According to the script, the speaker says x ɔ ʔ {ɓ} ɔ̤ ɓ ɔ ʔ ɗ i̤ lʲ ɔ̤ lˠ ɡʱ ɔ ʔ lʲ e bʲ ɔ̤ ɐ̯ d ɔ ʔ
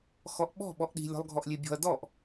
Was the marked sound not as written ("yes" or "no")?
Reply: no